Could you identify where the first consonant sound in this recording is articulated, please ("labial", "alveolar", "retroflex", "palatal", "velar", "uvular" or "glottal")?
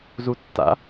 alveolar